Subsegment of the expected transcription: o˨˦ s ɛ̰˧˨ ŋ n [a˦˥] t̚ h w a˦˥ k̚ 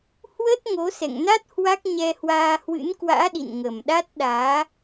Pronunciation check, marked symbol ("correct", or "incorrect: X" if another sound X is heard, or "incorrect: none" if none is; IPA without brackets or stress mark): correct